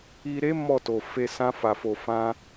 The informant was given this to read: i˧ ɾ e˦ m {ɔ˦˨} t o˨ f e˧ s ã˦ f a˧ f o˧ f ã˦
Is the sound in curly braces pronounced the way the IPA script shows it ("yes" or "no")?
yes